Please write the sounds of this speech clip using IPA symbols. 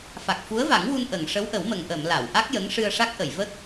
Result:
fa˨˩k̚fu˧˥ə̯va˨˩˦ŋwu˧n ʔə˨˩˨ŋ ʂə˧˥wʔə˨˩˦wmə˨˩ŋ ʔə˨˩˨m la˨˩˨wʔa˦˥k̚jə˧˥ŋʂɨ˧ə̯ ʂa˦˥k̚ʔə˨˩˨jvə˦˥k̚

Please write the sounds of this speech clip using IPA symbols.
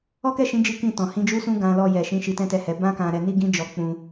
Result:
ɔ˦kɛ˦˨ʃĩ˨˦ d͡ʒi˦ kĩ˦˨tɔ̃˨ hĩ˨˦d͡ʒu˦sũ˦ ɡã˧ lɔ˧jɛ˨ʃĩ˨˦ ʃi˧tɛ̃˦tɛ˦˨ hɛ˨˦ bã˦kã˧ ɾɛ˧ni˦ɡĩ˦ d͡ʒɔ˧k͡pũ˧

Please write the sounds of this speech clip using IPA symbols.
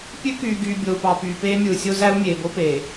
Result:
pʲø˦kyː˨ɡyː˨ bʲo˨u̯pɑ˨ pyː˨peː˦mʲɯ˨u̯ sʲo˦zæ˦u̯ mʲeː˨bo˦peː˨

